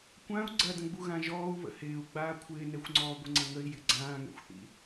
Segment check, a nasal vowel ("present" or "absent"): present